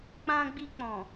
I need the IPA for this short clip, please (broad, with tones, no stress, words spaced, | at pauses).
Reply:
k͡pã˧ɡ͡bi˧ k͡pɔ̃˨